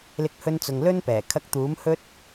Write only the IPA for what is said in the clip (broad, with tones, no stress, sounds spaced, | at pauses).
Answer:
l ɪ˧ k̚ h ɵ˧ n t͡s ʊ˨ ŋ l ɵ˥ n p ɛː˨˩ kʰ ɐ˧ k̚ t̪ uː˨˥ m h ɵ˥ t̚